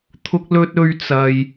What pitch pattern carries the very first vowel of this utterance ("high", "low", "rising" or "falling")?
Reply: high